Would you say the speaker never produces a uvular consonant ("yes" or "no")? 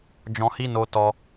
yes